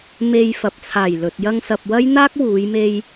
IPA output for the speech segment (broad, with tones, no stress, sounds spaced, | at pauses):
m e˨ j f ɐ˨ p̚ t͡sʰ aː˨˩ j l ɵ˨ t̚ j ɐ˧ ŋ s ɐ˨ p̚ w ɐ˥ j n̪ aː˥ k̚ w uː˨˧ j m e˧ j